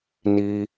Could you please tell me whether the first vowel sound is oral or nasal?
oral